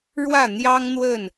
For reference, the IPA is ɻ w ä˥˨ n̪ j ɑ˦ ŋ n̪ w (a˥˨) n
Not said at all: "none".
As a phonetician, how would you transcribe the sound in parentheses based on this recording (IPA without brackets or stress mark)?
ə˥˨